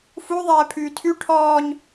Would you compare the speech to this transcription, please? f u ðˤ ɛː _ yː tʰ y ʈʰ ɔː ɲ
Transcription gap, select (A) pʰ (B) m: A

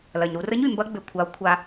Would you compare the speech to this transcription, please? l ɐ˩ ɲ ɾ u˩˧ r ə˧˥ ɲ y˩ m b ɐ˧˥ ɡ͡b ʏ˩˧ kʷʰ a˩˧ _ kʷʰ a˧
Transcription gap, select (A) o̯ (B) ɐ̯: A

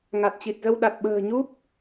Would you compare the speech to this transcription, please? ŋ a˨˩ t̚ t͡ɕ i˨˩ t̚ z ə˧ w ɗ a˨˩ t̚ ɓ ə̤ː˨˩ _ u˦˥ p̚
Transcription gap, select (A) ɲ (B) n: A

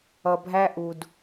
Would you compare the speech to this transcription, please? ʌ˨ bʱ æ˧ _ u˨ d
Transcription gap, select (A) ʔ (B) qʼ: A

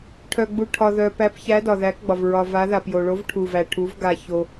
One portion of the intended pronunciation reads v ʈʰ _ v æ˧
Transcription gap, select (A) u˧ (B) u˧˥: A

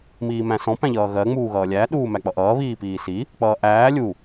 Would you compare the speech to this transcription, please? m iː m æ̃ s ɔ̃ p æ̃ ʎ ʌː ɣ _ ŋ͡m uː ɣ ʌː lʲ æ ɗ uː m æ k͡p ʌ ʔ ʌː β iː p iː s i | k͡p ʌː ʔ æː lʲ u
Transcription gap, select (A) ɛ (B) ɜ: B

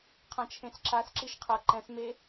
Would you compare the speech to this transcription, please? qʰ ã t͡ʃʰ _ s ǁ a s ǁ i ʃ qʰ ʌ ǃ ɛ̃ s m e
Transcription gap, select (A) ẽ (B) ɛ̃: A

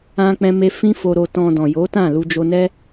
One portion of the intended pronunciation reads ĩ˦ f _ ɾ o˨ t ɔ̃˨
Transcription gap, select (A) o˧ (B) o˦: A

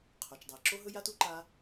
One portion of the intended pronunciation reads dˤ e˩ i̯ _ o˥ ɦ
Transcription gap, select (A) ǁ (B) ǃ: A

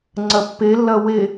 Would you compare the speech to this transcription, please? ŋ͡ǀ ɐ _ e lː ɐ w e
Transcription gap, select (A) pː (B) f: A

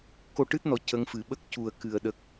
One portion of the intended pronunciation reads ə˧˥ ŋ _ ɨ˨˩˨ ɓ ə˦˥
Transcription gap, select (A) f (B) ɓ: A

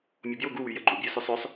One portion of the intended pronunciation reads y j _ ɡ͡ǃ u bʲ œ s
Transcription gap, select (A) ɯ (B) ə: B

